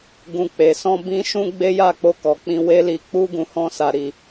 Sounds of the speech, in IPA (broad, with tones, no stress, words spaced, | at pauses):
ɡũ˨k͡pe˨sɔ̃˧ bĩ˦ʃũ˦ ɡ͡be˦ja˦˨k͡po˧ kɔ˨k͡pĩ˧ we˧li˨k͡pu˧ ɡũ˨hɔ̃˧sa˨ɾi˨